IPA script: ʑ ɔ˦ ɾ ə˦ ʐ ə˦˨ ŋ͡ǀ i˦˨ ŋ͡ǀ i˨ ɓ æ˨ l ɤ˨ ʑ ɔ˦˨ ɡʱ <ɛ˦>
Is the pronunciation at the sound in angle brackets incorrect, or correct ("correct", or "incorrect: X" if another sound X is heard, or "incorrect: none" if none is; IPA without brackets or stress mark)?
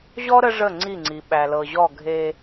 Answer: incorrect: e˦